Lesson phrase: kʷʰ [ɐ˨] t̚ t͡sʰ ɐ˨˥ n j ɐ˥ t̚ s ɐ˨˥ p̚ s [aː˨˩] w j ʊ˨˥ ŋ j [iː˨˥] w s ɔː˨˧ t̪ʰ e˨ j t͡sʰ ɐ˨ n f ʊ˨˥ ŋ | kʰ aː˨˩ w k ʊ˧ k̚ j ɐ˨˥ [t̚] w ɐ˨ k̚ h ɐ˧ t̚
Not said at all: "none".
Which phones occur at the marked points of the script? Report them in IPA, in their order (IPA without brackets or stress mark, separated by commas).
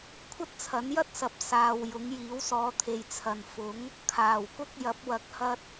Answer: ɐ˥, aː˨, iː˨˥, p̚